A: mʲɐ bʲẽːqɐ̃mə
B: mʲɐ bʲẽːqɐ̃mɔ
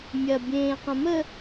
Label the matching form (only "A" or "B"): A